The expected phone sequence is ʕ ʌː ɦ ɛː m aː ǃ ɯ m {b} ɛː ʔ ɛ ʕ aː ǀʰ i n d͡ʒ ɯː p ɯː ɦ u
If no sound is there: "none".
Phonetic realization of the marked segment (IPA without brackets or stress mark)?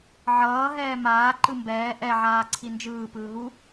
b